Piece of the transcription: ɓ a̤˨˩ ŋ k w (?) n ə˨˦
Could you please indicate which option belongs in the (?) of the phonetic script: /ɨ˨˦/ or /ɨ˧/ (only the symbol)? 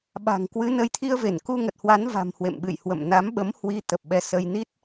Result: ɨ˨˦